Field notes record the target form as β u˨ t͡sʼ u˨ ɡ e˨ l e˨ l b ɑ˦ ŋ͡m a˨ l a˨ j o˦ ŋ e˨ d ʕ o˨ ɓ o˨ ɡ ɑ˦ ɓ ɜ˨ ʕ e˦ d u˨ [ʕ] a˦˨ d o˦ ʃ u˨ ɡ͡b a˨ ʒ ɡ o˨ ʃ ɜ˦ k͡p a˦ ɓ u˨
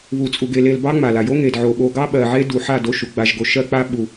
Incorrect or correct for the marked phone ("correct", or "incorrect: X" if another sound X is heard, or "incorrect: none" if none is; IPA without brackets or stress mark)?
incorrect: ħ